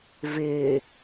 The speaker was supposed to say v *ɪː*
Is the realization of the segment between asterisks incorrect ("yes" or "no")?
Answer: no